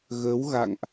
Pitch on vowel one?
rising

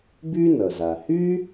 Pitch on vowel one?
high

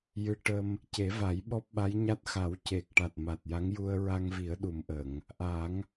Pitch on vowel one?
rising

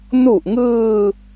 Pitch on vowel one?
low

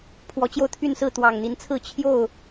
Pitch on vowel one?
rising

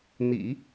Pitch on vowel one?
low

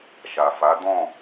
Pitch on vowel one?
low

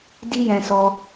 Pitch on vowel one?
high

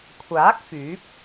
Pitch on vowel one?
rising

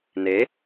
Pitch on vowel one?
rising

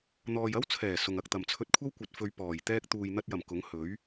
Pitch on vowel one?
low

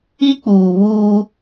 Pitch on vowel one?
high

